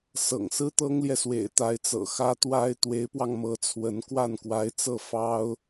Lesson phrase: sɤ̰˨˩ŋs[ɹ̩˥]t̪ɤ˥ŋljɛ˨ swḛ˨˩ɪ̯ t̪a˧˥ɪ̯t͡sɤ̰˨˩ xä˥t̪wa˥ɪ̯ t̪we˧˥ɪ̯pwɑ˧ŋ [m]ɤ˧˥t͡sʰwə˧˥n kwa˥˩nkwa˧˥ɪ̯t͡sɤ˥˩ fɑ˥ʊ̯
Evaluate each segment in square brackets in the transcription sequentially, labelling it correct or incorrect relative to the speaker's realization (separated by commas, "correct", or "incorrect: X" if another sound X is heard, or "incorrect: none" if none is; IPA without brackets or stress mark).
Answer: correct, correct